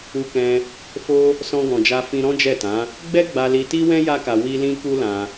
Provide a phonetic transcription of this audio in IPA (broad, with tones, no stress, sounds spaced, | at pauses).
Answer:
u˧ k ɛ̃˧ | f o˧ | s ɔ̃˧ ɡ ɔ̃˨ d͡ʒ a˧ f ĩ˦ ɾ ɔ̃˦ d͡ʒ ɛ˦˨ t ã˨˦ | ɡ͡b ɛ˦ ɡ͡b a˧ l i˧ t i˦ w ɛ̃˦ j a˦ k a˧ w i˦ l ĩ˦ k u˦ l ã˧